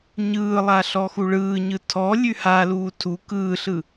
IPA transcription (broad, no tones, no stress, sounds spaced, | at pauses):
ɲ ɯː lˠ a ɬ ɔ x u ɭ ɯː ɲ ɯ tʰ ɔ lʲ ʉ h a l uː tʰ u k ɯː ɬ ɯ